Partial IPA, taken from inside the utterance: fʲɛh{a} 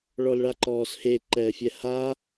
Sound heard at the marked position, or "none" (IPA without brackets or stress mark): a